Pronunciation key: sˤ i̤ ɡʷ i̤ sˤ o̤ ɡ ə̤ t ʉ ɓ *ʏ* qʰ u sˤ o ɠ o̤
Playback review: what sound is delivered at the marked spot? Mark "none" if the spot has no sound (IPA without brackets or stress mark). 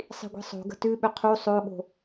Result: ʏ